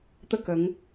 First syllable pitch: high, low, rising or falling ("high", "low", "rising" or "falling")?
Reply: falling